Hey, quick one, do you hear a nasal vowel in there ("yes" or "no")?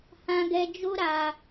yes